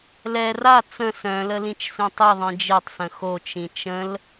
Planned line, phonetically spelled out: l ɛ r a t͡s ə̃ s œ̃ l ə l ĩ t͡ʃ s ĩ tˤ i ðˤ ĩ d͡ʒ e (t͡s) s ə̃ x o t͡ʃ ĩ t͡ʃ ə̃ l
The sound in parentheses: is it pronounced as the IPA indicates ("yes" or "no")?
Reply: no